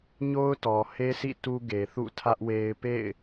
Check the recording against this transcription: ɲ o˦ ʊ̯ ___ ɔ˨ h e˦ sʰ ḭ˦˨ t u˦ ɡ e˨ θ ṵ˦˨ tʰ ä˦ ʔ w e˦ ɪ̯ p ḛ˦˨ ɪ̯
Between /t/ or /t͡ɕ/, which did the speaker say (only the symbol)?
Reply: t